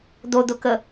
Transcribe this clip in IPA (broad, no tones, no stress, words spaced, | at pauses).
d̪od̪ʊkə